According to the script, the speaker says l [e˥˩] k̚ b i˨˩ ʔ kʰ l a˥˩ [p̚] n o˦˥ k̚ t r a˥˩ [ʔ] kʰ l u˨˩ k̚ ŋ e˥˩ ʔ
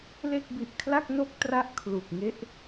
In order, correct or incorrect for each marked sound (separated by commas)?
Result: correct, incorrect, correct